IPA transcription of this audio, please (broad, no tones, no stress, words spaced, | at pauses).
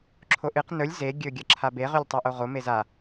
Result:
ǁʰoʔɨq nɵlʲ ze ɡʲɵ ɡʲɐǁʰabe ʁʉlʲtˤuʔoʁo meza